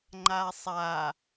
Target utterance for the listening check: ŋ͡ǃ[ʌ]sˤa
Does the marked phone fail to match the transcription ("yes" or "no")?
yes